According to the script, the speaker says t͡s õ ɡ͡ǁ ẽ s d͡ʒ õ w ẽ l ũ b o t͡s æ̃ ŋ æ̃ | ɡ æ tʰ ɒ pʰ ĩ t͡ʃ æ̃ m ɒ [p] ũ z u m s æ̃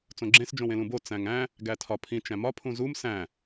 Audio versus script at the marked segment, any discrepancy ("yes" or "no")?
yes